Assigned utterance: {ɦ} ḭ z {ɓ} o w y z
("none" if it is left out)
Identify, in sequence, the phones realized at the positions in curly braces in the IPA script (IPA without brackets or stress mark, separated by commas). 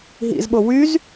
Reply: ɦ, ɓ